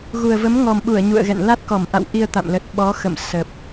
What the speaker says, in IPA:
ɣu˨˩ə̯və˨˦m ŋɔ˨˩mɓu˧˩ə̯ ɲṵ˧˨ə̯ɣɛ̰˧˨n la˦˥t̚kɔ˧˩mʔa̰˧˨w ʔi˧ə̯t̪a̰˧˨m lə˨˩t̚ ɓɔ˨˦xə̰˧˨m sə˨˩p̚

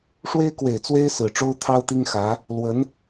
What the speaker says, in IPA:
ʂwe˥ɪ̯kwe˨˩ɪ̯t͡swe˥ɪ̯ sɹ̩˨˩ʈ͡ʂo˥ʊ̯ t̪ʰɑ˥ʊ̯t̪i˥ŋxä˧˥ | lwə˧˥n

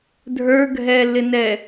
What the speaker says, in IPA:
dʱə˞ɡʱɛːlːɪnɛ

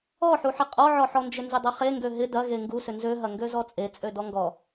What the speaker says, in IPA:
ɔħuħɪ qʼɔʕɔħɔnd͡ʒʏ nzɪdˤɐχe ŋɡøɦɪ dɐɣe ŋɡusʏ nzøɦɐŋɡø zɔt͡sʼet͡sʼø dɔŋɡɔ

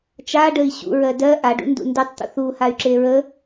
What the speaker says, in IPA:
t͡ʃaɖəi̯ ɕṵɹɜ dɜ ʔaɖṵndṵ ndʉtˤt̪ṵθ uhay̯ǁe ɹə

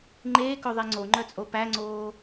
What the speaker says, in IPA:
ŋ͡ǃeːkɵ ðˤeŋ͡ǀoŋ͡ǃœt͡sʼo pæŋ͡ǀoː

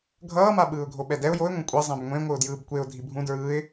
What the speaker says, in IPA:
ɡʱʌːma ɓɯːʊ̯ɡʱoɓɛdɛʊ̯ joɪ̯ŋʷẽ kʷʼɛ zˤɛ̃bŋʷẽ ŋʷɯʊ̯djɯːbkʷeʊ̯ dʱibʱũ dɹɯːɪ̯

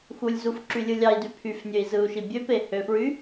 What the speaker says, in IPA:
xulʲzufǁylʲɯ lʲɑi̯dy pʰyfnʲøi̯zɯu̯ʃi bʲøpe høfɹy

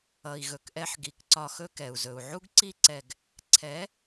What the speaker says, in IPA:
ʌ˨i̯ɣɵ˨kʔɛ˧ħɡi˨k ǀɒ˧xɵ˦kɛ˨u̯ zɵ˨u̯ʕu˦ɡǀi˦ ǀɛ˧ɡ | ǀʰɛ˨˦

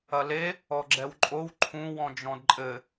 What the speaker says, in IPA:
ɐle | ɔɡ͡ǁɛwǃʼow ǃʰũ wɔ̃d͡ʒɔ̃dǃʼɘ

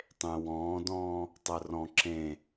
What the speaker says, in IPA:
tˤẽ wɔ̃ːdɔ̃ː | tˤəːrɔ̃ ǁẽ

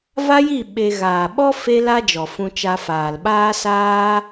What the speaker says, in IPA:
va˦ji˦˨ ɓe˧ɣaː˨ ɓɔ˦ fe˦la˦d͡ʒɔ˨ fũ˧t͡ʃa˧ faː˨lɓaː˦saː˦

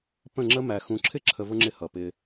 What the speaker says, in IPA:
pə̃˦˨ŋ͡ǁə˦mæ˨ xũ˨ǁʰɪ˦ ǁʰə˧vʊ˦ŋ͡ǁɪ˧hʌ˨ pɪ˧

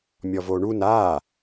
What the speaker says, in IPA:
mʲɔvoɳun a

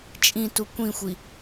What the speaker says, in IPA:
t͡ʃʼĩtu kʷĩxʷi

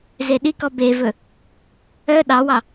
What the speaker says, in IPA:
zeɗikɔ bevɵ | œ ɗɑwɑ

